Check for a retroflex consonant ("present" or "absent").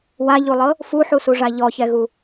present